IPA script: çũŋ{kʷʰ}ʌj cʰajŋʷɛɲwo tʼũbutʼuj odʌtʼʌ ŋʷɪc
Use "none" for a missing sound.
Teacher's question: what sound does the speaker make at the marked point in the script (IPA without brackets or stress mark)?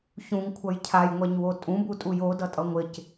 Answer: kʷʰ